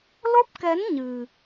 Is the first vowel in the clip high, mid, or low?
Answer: mid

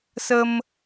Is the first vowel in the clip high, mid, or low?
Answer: mid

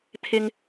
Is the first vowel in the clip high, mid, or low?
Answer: high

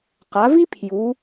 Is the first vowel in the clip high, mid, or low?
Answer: low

